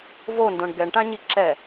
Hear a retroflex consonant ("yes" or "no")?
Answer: yes